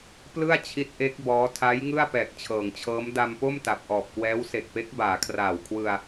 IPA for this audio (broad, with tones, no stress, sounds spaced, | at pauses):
p l ɯ˥˩ a̯ t͡ɕʰ i˦˥ t̚ ʔ e˦˥ k̚ b ɔː˦˥ tʰ a˦˥ j ŋ ɯ˥˩ a̯ p ɛː˨˩ k̚ t͡ɕʰ ɤː˩˦ ŋ t͡ɕʰ ɤː˦˥ m d a˧ m p o˥˩ m t a˨˩ p̚ ʔ ɔː˨˩ p̚ k w ɛː˦˥ w s e˨˩ k̚ p e˦˥ k̚ b aː˩˦ kʰ r aː˨˩ w kʰ w ɯ˧ a̯